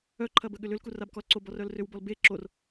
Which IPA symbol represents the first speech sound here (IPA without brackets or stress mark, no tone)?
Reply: œ